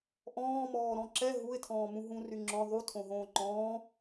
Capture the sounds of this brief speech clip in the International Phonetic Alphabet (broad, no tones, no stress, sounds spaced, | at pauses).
ʔ ɔ̃ː m ɔː ɾ ɔ̃ ǁ ɛ ɦ u ɪ̯ tʰ ɔ̃ː m ũ ɦ ũ r y ŋ͡ǁ ɔ̃ ðˤ u tʰ õ ɦ õː ŋ͡ǃ ɔ̃ː